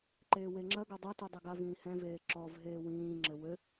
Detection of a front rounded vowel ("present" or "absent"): absent